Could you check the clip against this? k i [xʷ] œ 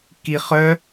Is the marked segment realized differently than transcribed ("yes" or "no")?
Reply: yes